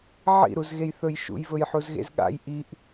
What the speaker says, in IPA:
ʕḭɾuzɣejθɵj ʃṵjvɵjħuzɣḛz ɠa̰j ʔiʔ

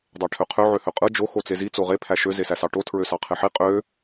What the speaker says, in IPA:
dˤæʈʰøqʰø ʕøhøqʼɯ d͡ʒo xot͡sezi t͡soʁe pʰæʃø zesæsɑʈo tʰɹøsɑqʰeħi qʼø

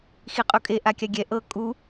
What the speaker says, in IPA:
xiqʼukʼe ʔakʲaɡʲɛ ʔɤ kʼu

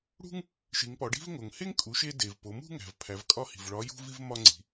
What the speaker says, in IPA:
ɽṳ˥ŋ | ʃi˩˧ŋpɒ˩˧ɖi̤˥vŋo˩ŋ he˥ŋkʼu˩˧ʃe˧ de˩v po˩˧mṳ˥ ŋæ̤˩vpʰæ˩˧vkʼɒ˥hi̤˩v ɭɒ˧˥jṳ˥vi˥v mɒ˥ŋ͡ǀi̤˩˧

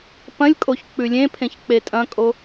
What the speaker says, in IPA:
pɐ̃lʲkʼoç k͡pʉlʲẽpʰẽç k͡petʼɐ̃kʼo

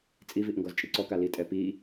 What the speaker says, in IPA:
t͡sʼiviʔŋɡɔzt͡ʃʼi ǀɔka litʼɛ pi

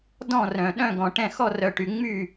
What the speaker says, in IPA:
dɔ̃˥˨rœ̃˨ɗœ̃˥˨ ɡɔ̃˨ʈɛ̃˥˨ xɔ˥˨rœ˨ʈy˨ ŋ͡my˥˨

